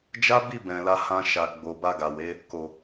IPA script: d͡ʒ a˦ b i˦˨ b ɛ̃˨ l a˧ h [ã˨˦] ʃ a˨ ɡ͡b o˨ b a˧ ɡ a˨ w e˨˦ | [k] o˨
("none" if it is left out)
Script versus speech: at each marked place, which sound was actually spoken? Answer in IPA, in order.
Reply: ã˧, k

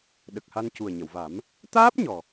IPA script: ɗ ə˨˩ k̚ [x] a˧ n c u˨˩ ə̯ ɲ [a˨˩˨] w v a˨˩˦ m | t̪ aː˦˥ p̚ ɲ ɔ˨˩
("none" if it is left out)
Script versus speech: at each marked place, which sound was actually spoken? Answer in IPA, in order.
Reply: h, ə˨˩˨

